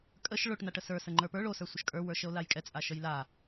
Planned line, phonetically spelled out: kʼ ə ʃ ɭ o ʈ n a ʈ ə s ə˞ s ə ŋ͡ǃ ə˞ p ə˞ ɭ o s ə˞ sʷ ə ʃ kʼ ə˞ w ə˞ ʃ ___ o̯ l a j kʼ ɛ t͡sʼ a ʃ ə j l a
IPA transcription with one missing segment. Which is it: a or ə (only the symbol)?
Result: ə